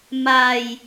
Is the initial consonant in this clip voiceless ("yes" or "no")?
no